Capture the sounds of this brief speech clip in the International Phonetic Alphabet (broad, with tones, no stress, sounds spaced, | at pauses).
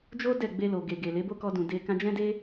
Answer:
d͡ʒ o˦ d ɛ˦˨ ɡ͡b e˧ l o˨ ɡ e˨ ɡ e˨ l e˨˦ b o˦ k ɔ˧ d ũ˨ d e˧ k ã˧ d͡ʒ ɛ̃˦ d e˦